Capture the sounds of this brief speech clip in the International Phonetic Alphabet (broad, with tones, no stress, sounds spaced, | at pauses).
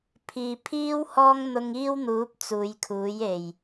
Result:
pʰ iː˨ pʰ iː˥ w h ɔː˥ ŋ n̪ ʊ˧ ŋ iː˥ w n̪ uː˨˥ p̚ t͡s uː˨˧ j kʰ uː˨˥ j e˨˩ j